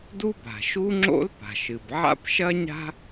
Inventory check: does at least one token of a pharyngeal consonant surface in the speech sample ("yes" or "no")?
yes